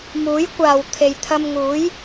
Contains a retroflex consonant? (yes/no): no